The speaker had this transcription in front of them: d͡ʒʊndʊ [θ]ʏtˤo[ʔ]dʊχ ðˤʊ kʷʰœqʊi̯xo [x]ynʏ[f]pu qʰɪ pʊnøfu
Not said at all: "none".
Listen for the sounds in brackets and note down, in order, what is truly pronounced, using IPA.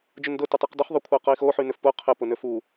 t, q, ħ, f

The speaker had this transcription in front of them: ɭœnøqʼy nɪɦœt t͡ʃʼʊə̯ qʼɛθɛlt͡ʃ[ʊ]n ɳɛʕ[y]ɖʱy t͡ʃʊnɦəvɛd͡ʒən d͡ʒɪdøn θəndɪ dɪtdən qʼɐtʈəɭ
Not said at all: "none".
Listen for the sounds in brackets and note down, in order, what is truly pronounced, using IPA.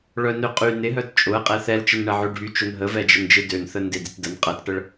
ə, ø

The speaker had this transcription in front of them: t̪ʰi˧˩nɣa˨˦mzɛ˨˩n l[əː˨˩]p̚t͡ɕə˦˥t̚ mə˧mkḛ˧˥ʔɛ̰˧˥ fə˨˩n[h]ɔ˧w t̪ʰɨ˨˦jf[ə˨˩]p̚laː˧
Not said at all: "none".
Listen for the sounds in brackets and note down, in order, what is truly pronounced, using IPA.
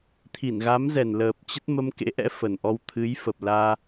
əː˨˩, ʔ, ə˨˩

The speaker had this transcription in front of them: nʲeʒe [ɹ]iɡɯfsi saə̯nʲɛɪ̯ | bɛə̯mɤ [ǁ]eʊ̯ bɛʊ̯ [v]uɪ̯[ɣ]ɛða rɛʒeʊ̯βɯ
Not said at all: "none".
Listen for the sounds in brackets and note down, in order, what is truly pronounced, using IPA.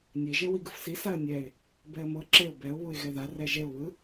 w, ǁ, β, ɣ

